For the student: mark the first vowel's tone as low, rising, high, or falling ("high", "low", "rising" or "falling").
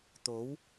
rising